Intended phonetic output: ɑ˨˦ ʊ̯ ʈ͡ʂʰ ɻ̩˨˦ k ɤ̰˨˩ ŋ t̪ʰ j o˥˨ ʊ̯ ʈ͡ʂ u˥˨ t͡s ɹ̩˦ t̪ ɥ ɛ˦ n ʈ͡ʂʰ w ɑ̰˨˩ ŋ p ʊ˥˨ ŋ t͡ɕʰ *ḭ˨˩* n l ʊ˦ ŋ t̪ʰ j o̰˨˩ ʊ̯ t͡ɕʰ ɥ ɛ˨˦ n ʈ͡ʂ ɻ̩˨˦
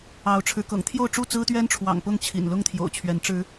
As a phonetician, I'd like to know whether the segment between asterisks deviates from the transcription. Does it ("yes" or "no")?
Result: no